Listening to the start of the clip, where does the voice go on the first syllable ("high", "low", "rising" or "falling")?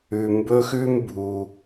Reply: low